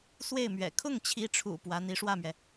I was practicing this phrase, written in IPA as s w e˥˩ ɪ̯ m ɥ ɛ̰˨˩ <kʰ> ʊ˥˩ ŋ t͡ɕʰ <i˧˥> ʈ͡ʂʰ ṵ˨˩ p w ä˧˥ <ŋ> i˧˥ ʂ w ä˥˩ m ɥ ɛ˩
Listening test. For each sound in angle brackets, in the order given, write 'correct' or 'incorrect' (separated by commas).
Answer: correct, correct, incorrect